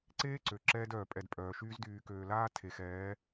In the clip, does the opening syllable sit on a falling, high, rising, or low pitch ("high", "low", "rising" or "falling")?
high